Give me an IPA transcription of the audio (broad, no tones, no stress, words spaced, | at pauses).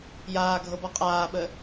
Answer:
jaːɡʱɤbɔ qʼaːɓə